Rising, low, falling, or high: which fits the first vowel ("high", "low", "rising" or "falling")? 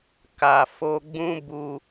low